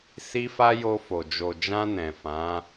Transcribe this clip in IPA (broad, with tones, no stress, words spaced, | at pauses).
si˧fa˧ jo˧fo˨ d͡ʒo˨d͡ʒã˧ nɛ̃˨fã˨˦